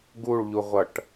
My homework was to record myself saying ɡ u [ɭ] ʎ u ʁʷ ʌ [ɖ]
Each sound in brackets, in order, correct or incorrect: correct, incorrect: ʈ

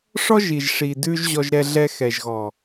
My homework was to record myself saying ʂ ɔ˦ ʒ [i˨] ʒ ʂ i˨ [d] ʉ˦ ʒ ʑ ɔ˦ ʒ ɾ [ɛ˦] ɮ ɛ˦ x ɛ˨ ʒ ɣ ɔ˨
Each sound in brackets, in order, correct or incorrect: correct, correct, correct

